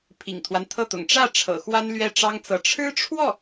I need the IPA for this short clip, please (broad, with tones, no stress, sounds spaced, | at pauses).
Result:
pʰ ḭ˨˩ ŋ t̪ʰ w a˦ n t̪ʰ ɤ˥˩ t̪ ʊ̰˨˩ ŋ ʈ͡ʂ ä˥˩ ʈ͡ʂʰ ɤ̰˨˩ x w a˥ n l ɥ ɛ˥˩ ʈ͡ʂ ɑ˥ ŋ t͡s ɤ˧˥ ʈ͡ʂʰ ɻ̩˥ ʈ͡ʂʰ w ɔ˥˩